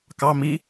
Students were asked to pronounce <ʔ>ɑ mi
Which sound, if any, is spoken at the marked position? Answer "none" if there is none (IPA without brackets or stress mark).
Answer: k